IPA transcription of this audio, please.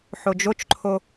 ħ o d͡ʒ o t͡ʃ ǃʰ o

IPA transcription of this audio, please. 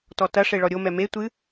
t ɔ t ɐ ʂ e ɭ ɔ ɾʲ o m ɛ m e tʷ ɨ

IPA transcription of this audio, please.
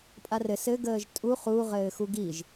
pʼ a r ɘ s ɘ ɡ əː ʒ tʼ u χ u ʁ ɘː x u ɡ i ʒ

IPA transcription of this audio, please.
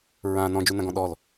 ɹ ã n ɔ̃ d͡ʒ u n ã ɡ ɔ̃ ɗ ɔ l

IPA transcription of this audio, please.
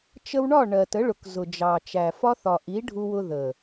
t͡ʃ ə˧ w ɳ ɒ˦˨ ɳ ɜ˨ t ə˨˦ ɭ ʊ˨ k z ʊ˨ d͡ʒ ɑ˨ t͡ʃ æ˨ f ɒ˦ θ ɒ˨ ʔ i˨˦ ɖʱ u˧ w ʊ˧ ð ə˨

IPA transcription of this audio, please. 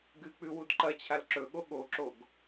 ɡ ɨ k͡p ʉ w u d ǃ ɐ t͡ɕʰ a l ǁ ɵ ɠ o ɠ o ǁ o ɡ

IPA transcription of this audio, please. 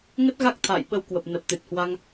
ŋ ə˦˥ t̚ ɣ a˦˥ k̚ t̪ʰ a̰ː˧˨ j ɓ ə˧ w k w ə˨˩ p̚ n ə˨˩ p̚ t̪ ɨ˨˩ t̚ h w a˧ ŋ

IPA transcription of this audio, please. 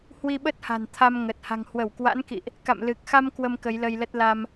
h w i˧ ɓ ə˦˥ t̚ h a̤˨˩ n t̪ʰ a˧ m ŋ ə˨˩ t̚ h a̤˨˩ ŋ h w ə˧˩ w k w a̰˧˥ n k ḭ˧˨ ʔ | k a̰˧˨ m l ɨ˨˩ k̚ x a˧ m k w ə˧ m k ə˨˦ j l ə˧ j l ə˦˥ t̚ l a˧ m

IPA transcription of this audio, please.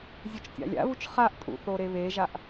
zʲ u t͡ʃ tʲ a̰ lʲ a̰ β u t͡ʃ χ a ʔ tʼ ṵ θ o ɾ e β e ʒ a ʔ

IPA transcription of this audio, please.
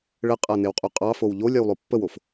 ɭ ə qʼ a n e w qʼ u qʼ ɑ f o w ʎ o lʲ a w lˠ o pː ə w o f

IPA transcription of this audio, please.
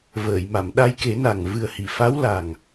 v əː˨˩˨ j m a˨˩˨ m ɗ a˧ j k e˨˩˦ n a˨˩ ŋ v ɨ˨˩ ə̯ h i˨˩˨ f a˧˥ w l a˨˩ ŋ

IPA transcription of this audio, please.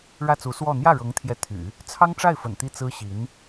ɻ ä˥˩ t͡s u˧˥ s w ɔ˥˧ n̪ j ä˥˩ ɻ ɤ˧˥ ŋ t̪ʰ j ɛ˧˥ t̪ʰ y̰˨˩˦ | t͡sʰ ɑ˥ ŋ ʈ͡ʂ a˥˩ ɪ̯ f ə̰˨˩ n t̪ i˥˩ t͡s ɹ̩˥ ɕ i˧˥ n

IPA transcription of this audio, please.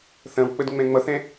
θ ɐ̃ w k͡p ə d ŋ͡m ɛ̃ ŋ͡m ʌ θ ɛ̃

